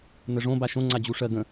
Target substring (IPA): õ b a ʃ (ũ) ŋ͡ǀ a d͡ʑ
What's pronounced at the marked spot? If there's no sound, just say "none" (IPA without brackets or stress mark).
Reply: õ